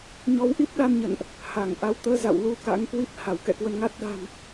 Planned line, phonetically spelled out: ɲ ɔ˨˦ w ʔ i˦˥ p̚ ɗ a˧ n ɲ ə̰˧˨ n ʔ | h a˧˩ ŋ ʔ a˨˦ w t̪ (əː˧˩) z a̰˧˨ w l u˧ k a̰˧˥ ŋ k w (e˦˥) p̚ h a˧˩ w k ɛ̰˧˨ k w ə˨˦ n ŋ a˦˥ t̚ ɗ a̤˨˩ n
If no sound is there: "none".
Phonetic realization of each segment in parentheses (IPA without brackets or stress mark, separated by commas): əː˧, i˦˥